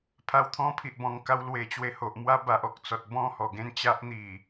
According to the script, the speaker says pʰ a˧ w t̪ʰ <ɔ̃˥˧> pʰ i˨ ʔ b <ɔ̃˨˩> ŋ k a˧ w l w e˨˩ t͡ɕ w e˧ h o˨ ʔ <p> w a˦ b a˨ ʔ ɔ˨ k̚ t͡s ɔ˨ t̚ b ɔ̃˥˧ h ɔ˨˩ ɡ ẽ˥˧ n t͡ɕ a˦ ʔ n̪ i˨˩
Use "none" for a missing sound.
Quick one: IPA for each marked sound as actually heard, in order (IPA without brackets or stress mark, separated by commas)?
ɔ̃˦, ɔ̃˨˩, m